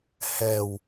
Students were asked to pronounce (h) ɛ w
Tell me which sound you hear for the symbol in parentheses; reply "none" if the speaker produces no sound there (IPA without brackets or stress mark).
h